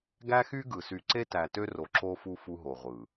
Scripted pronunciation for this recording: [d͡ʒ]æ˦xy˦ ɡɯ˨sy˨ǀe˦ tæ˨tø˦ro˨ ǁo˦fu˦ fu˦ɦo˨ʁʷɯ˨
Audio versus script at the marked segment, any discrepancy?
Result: yes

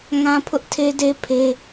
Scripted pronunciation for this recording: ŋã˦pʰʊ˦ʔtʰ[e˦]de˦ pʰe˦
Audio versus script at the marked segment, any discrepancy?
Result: no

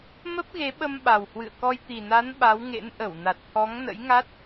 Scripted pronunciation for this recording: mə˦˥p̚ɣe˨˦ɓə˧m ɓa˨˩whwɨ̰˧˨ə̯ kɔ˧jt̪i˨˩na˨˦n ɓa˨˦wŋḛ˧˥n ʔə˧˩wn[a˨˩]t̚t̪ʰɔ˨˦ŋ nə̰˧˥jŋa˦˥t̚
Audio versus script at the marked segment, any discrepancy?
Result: no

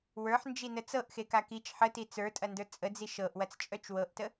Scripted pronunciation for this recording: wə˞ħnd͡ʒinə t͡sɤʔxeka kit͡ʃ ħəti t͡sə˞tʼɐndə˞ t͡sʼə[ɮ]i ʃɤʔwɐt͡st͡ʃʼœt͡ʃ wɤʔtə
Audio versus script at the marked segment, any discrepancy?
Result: yes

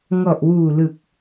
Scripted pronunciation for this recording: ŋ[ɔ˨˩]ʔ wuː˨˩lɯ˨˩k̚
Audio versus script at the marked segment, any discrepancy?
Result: no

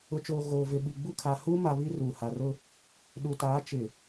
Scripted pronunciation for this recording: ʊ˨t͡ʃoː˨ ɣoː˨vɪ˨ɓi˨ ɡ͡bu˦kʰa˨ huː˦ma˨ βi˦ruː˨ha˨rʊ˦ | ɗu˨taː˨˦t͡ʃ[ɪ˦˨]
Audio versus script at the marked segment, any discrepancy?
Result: yes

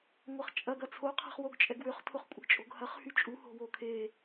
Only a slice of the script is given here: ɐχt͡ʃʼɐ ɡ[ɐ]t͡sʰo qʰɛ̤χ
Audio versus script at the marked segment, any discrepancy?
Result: no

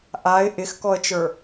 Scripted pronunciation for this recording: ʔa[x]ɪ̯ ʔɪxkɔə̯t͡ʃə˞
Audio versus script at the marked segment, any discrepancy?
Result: yes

